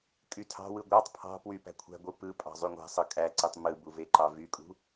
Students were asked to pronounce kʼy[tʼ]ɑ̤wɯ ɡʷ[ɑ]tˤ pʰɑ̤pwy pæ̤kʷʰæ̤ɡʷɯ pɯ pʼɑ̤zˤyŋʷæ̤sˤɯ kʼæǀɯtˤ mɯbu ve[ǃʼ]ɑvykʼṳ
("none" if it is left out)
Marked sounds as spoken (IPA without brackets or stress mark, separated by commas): tʰ, ɑ, ǃ